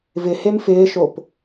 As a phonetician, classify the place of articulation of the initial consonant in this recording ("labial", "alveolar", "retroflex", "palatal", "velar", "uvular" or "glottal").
labial